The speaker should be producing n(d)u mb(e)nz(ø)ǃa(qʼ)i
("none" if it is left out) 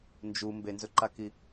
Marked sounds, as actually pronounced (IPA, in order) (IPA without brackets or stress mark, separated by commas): d͡ʒ, e, ɵ, k